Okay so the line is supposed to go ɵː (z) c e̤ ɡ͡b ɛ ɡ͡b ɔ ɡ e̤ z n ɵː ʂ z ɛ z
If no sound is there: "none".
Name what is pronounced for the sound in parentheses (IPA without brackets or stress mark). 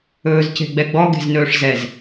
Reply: z